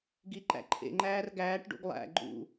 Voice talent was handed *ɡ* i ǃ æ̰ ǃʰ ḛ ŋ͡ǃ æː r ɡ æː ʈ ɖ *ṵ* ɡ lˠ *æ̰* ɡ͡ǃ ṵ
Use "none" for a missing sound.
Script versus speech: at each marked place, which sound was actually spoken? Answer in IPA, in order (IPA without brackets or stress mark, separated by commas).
ɡ, ṵ, æ̰